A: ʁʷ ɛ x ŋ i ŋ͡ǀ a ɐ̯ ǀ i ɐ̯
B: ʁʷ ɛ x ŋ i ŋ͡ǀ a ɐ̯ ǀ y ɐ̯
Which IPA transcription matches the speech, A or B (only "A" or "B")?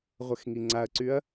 B